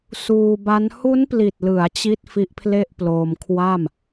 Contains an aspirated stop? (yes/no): yes